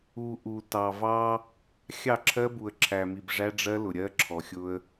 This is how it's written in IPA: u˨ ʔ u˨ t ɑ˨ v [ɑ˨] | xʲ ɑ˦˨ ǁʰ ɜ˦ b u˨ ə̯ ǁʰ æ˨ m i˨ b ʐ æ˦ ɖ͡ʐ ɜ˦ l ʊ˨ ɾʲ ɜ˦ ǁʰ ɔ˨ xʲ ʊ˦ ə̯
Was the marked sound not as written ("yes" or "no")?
yes